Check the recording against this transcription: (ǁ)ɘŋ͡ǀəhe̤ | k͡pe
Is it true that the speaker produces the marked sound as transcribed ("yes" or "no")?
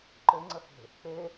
no